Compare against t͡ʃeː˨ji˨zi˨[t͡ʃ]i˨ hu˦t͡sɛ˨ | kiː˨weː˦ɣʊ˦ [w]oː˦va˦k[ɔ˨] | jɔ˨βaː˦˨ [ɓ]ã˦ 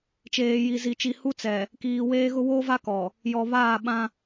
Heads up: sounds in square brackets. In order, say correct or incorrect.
correct, correct, correct, correct

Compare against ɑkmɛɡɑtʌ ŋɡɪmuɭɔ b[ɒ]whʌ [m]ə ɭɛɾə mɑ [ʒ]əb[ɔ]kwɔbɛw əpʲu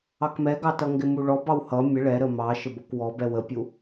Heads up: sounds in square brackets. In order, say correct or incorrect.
incorrect: ɑ, incorrect: mʲ, incorrect: ʃ, correct

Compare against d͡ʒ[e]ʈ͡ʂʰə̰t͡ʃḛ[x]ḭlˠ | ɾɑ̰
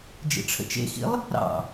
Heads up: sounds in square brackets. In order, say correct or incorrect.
incorrect: ḛ, correct

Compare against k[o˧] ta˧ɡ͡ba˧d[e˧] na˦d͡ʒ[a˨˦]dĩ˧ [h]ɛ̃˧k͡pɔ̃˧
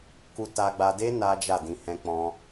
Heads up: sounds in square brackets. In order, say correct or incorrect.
incorrect: u˧, incorrect: e˦, incorrect: a˦˨, correct

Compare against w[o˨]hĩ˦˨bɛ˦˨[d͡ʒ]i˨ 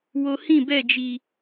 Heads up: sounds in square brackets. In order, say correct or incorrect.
correct, correct

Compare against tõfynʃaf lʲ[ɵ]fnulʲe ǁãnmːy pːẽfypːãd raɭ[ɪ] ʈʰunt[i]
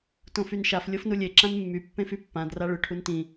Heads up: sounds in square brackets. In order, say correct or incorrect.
incorrect: o, incorrect: ʏ, incorrect: ĩ

